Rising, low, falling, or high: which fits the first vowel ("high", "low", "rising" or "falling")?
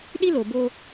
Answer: high